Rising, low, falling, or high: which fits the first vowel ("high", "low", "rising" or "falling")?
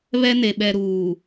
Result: high